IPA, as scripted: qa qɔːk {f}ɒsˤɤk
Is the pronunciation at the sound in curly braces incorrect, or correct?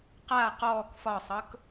correct